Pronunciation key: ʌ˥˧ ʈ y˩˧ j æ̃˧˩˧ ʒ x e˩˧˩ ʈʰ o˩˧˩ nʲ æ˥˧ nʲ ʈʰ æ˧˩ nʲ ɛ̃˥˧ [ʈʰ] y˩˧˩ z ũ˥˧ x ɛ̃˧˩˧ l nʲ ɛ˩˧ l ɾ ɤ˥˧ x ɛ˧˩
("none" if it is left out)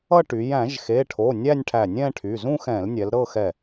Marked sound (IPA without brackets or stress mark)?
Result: ʈʰ